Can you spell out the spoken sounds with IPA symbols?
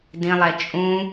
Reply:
d ĩ lˠ ɛ t͡ʃʼ ũ

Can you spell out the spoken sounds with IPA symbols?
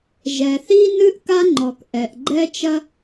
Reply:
ʒ ɛ˩ θ i˥ n ɨ˥ ʔ k a˥ ŋ͡ǃ ɔ˩ k ʔ ɛ˩ ʔ ɡ͡ǃ ɛ˥ t͡ʃ ɐ˥

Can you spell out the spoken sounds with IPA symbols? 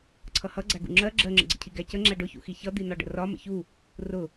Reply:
ǀʰ ʌ h ʌ ɡ͡ǀ æ ɡ ṵ ŋ͡ǁ ɜ ɡ͡ǁ ɜ ŋ͡ǁ ə̰ ɡ͡ǀ ə̰ cʰ i ɡ æ c ə ŋ͡ǁ æ ɖ ʊ ç ṵ x i ç ʌ d̪ i n ɒ ɖ ə̰ r ɒ m ə̰ ç u | r ʊ

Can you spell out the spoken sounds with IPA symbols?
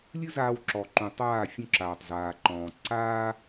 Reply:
lʲ ɨ˦ z aː˧ w ǁ ɔ˨ ǃ ũ˨ tˤ aː˦˨ fʲ ũ˧ ǁ aː˨ tˤ z aː˨ ǃ ɔ̃ː˨ ǀ aː˦

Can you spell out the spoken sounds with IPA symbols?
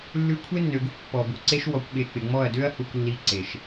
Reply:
lː ʉ˧ kʷʰ e˦ nː ø˨ ɡ u˦ kʷ pː ɔ˨ b u˨ ǀ e˦ ʃ w ɔ˧ kʷ ɠ e˧ k͡p ɪ˨ ŋ͡m ɔ˦˨ ɐ̯ d ø˦ ɐ̯ h u˧ kʷ lː i˧ ǀ e˨ ʃ

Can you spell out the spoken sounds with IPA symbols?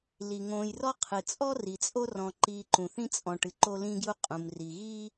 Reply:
l i˩ ŋ õː˨ j r ɔ˥ qʰ ɨ˩ t͡sʼ ɔ˥ r i˩ t͡sʼ o˦ r ɔ̃˨ ǃ iː˨ ǃ ũ˩ θ ĩ˦ t͡sʼ ɔ̃˨ ʈ ɨ˩ ǃ o˦ l ĩː˦ ɡ j u˦ qʼ ũ˩ m r i˩ ɣ iː˥

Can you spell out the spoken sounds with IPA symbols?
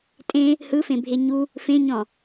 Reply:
tʼ ẽ | h ɯ f ẽ bʱ e ɲ u | f ẽ ɲ ɔ̃

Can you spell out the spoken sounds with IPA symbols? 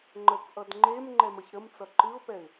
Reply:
ŋ͡ǃ ə k ʔ ʌ d ŋ͡ǃ e m ŋ͡ǃ ɛ m ə ç ɾ ə m t͡s ʌ ǃ ɨ ʊ̯ p ɛ ɪ̯

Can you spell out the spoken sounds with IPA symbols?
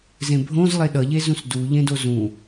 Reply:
z ẽ bʱ õ z lˠ e ɗ ʌ ʎ e z ũ s d u ʎ ẽ d o z ũ

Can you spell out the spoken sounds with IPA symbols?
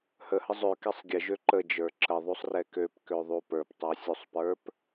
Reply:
h ə h ə zˤ ø k ɛ sˤ ɡʲ ə ʒ ø ǃ ə d͡ʒ ə˞ ǁ ə ðˤ u sˤ r ɛ k ø p k ø ðˤ u p ə˞ p tˤ ə˞ sʲ u sˤ p ə˞ p

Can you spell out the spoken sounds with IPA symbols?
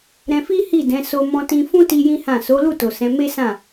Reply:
ɾ ɛ̃˧ f i˦ h i˦˨ d ɛ̃˨˦ s o˧ m ɔ̃˧ t ĩ˧ f ũ˦ t i˦ j ĩ˦ h ã˦˨ s o˨˦ l u˦˨ t o˨ s ɛ̃˨˦ m e˦ s ã˦˨

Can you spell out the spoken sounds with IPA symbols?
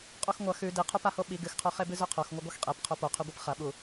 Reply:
qʼ u x ŋʷ ɐ x ʉ d i qʰ u p a h o ɓ i ɡ ɨ x qʰ o χ e b ɨ z ɵ qʰ o x ŋʷ ɨ ɡʷ ɐ x qʼ e p qʰ o p o qʰ ɵ ɡʷ ɨ p χ ɐ ɓ u

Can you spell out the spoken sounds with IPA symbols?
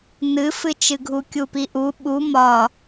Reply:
n ɨ f ɨ t͡ʃ ɨ ɡʱ u kʲ u p i ʔ u ɓ u m ɒ

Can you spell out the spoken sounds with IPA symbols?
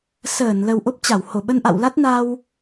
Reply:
s əː˧˩ n l ə˨˩ w ʔ o˦˥ p̚ t͡ɕ a˧˩ w h o˧˩ ɓ ə˧ n ʔ a̰˧˨ w l a˦˥ t̚ n a˧ w

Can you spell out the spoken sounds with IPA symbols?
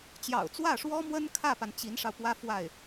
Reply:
t͡ɕ j ɑ̰˨˩ ʊ̯ t͡s w ä˥˩ ʂ w ɔ˥ m w ə˥ n kʰ ä˥˩ p a˩ n t͡ɕ i˧˥ n ʂ ɑ˧ ʊ̯ p w ä˥ f w a˥˩ ɪ̯

